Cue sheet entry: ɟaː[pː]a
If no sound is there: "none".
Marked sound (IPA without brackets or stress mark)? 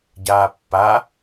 pː